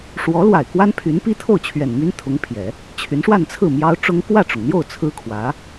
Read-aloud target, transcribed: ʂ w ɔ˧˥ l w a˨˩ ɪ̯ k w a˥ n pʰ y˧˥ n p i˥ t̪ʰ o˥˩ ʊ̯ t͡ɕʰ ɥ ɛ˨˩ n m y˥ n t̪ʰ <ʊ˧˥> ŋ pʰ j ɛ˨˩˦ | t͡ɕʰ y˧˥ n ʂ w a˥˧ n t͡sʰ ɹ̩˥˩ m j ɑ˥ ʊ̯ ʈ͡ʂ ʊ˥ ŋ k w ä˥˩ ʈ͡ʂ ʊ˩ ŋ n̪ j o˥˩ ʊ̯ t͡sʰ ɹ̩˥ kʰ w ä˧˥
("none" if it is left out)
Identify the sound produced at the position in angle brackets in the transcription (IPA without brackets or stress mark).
ʊ˧˥